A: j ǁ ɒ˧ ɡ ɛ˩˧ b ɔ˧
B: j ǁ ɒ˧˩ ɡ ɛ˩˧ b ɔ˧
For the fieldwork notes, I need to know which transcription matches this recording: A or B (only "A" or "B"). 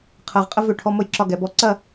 A